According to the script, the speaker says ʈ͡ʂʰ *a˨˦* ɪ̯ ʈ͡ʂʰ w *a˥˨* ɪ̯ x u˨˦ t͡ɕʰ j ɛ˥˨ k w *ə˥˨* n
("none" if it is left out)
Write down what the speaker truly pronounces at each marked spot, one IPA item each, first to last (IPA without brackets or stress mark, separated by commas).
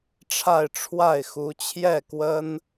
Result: a˥˨, a˥˨, ə˦